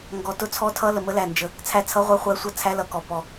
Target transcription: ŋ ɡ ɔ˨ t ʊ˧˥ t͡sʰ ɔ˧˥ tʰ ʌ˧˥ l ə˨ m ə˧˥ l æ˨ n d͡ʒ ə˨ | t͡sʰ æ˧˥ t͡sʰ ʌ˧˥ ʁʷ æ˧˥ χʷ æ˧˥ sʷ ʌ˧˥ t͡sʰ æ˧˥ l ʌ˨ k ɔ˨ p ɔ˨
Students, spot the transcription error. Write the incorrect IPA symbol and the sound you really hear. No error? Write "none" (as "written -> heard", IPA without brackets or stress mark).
none